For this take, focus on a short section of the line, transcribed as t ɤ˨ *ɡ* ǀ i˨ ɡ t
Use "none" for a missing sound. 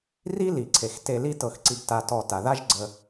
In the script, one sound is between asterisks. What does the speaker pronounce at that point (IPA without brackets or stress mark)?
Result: x